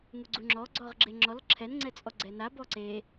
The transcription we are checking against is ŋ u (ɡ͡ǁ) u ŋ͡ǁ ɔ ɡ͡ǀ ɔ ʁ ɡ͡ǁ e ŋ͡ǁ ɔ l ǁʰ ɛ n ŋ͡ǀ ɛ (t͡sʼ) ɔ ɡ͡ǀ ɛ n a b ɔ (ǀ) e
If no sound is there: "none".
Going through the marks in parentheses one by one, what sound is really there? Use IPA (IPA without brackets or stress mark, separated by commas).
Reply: ɡ͡ǀ, t͡sʼ, ǀ